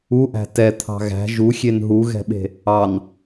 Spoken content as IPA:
uʔæ̤ tɛ t̪ʰɑ̤ɣæ̤ ʒuxʲen ɦuɣɛ̤ɓe̤ | ɑn

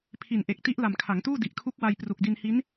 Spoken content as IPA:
pʰi˨˩nʔe˨˩k̚ti˦˥ʔ la˨˩mkʰa˩˦ŋtuː˥˩ di˨˩ʔkʰu˦˥k̚wa˧j pru˨˩k̚di˧nhi˦˥n

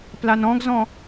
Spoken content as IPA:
planɔ̃ɡzɔ̃

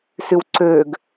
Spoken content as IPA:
sywǀøɡ

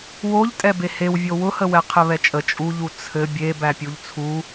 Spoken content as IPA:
woʎtʼɛ behewvʲo wʊhəwɛ qʰɘβɛt͡ʃʼə t͡ʃʼuʎu t͡sʰɘ bʲe bæpʲuʎt͡sʰu

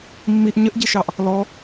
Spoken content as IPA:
mːiʔ ɲəʔɟiʃɑʔ | lɔ

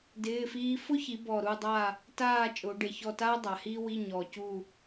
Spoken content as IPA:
dɪː˧˥˧fiː˥ fʊ˥çi˩˧bɔ˨˩ ɾu˦˨dˤa˦˨ | taː˦˨ t͡ʃʼʊː˩˧ɖe˨˩çɔ˦˨taː˥ dˤa˩˧hiː˥wi˧˥˧ ɲɔ˨˩ cu˦˨

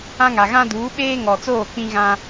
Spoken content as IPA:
ã˦ŋa˨ɣã˦ duː˨˦ɓeː˦ŋɔ˨t͡soː˦˨ k͡pĩ˦ɣã˦

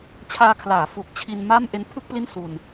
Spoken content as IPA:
t͡ɕʰaː˧kʰlaː˩˦ fu˨˩k̚ t͡ɕʰi˧nma˥˩m ʔe˦˥npʰɯ˥˩k̚pli˥˩n su˧n

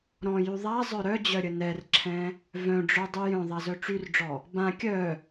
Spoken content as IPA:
ɾɔ̃jy ðˤazˤœ ɾœd͡ʑœɾʲə nɛrǁʰɛ̃ | vœ̃ɖ͡ʐœdˤy jœ̃ðˤazœ ʈ͡ʂyrɖ͡ʐɔ | bã kʲœ

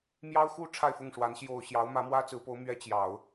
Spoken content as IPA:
mjɑ˥ʊ̯xu˥ ʈ͡ʂʰa˥˧ɪ̯fʊ˥˩ŋʂwa˧˥n ɕjo˨˩ʊ̯ ɕjɑ˧˥ʊ̯ mä˧˥mwä˥t͡sɹ̩˧˥po˧˥ʊ̯ mɥɛ˥ t͡ɕjɑ˨˩˦ʊ̯

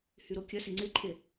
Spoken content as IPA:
hyɾokʲɐsɪ ŋ͡ǀɪǃʰe

